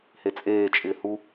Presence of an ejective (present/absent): present